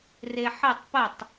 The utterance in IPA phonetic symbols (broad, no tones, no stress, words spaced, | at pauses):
reħɨtˤ pətˤ